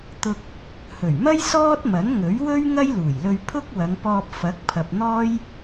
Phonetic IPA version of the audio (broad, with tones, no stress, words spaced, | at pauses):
t̪ʊ˧k̚ | hɵ˨˩ɥmɐ˥j sɔː˥t̚mɐ˨˥nŋɵ˨˥ɥ wɵ˥ɥ ŋɐ˥jluː˨˩jlɵ˧ɥ pʰʊ˥k̚wɐ˨˧ŋpɔː˧p̚ fɐ˨˥k̚ pʰɐ˨p̚n̪ɔː˥j